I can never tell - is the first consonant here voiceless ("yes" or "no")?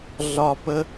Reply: no